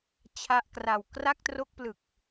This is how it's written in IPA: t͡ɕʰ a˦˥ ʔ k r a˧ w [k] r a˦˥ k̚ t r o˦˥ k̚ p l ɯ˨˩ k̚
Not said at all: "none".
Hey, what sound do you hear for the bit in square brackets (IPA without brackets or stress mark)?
k